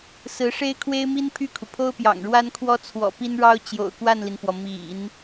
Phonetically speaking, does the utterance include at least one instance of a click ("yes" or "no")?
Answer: no